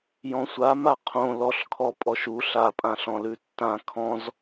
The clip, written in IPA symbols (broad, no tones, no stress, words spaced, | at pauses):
jɔ̃sʷa maqʰõ lɔɬkʰɔ pʼɔʃu ɬapʼãɬɔ̃ lʉtːã kʰɔ̃z